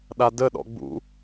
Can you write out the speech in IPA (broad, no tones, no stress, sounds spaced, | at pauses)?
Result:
ɗ a d ə ɗ ɔ̰ ɡ͡b ṵ